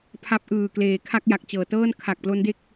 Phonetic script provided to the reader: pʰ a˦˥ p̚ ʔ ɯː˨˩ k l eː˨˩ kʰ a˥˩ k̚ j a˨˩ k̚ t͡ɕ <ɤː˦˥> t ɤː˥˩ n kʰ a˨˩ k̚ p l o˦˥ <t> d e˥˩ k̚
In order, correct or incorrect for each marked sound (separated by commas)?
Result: incorrect, incorrect